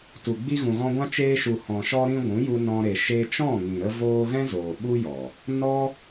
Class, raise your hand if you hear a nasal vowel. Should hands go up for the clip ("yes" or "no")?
yes